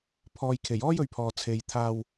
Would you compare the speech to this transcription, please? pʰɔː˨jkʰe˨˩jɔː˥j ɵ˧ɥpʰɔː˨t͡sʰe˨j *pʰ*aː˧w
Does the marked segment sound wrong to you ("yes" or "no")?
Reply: yes